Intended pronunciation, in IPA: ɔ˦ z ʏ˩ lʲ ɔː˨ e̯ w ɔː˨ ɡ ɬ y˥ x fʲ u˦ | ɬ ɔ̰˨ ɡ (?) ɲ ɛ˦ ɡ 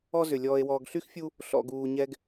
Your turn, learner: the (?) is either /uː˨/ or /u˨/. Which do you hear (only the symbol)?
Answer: uː˨